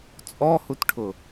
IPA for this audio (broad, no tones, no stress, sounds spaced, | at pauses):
t͡sʼ ɔ h u t ʈʰ ʊ